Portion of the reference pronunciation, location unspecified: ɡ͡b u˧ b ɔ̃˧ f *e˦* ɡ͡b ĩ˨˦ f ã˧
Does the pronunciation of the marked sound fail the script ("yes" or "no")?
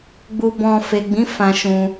yes